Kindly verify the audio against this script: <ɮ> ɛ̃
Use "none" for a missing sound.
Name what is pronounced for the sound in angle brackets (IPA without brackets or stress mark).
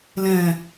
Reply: l